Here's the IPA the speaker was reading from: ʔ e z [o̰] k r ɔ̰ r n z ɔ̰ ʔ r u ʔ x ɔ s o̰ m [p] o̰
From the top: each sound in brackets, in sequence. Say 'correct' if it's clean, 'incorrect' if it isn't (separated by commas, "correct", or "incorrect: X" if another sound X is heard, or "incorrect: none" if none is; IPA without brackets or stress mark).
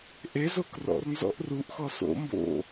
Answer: incorrect: o, incorrect: b